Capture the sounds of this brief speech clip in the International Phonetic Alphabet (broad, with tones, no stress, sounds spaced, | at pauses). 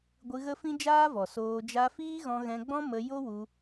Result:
ɡʷ ɨ˧ ɣ ə˦ f ĩ˦ d͡ʒ aː˦ v ɔ˨ s oː˧ d͡ʒ a˧ f iː˦ ɣ ɔ̃˧ ɣ ɛ̃˧ ɡ͡b ɔ̃˦ m ə˧ j o˦ w u˧